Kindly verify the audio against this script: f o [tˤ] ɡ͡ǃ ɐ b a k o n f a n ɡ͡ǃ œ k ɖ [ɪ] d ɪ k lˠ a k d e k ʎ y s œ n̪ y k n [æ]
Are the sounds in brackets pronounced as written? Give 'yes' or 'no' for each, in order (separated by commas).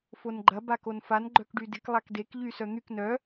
no, no, no